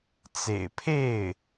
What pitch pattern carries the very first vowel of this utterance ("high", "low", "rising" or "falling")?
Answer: low